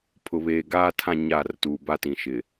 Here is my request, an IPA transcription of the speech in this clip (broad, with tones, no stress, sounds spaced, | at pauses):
pʰ ʊ˨ β eː˨ ɡ aː˦ tʰ ã˦˨ ɲ aː˦˨ r t uː˨ b a˦ t ĩ˨ ʃ ɪ˨